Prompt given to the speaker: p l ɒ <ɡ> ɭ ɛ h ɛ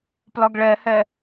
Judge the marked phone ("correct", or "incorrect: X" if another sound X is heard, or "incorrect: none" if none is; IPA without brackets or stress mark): correct